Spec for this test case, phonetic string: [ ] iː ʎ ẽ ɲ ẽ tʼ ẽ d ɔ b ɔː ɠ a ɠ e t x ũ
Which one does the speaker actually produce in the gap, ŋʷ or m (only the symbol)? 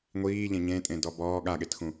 ŋʷ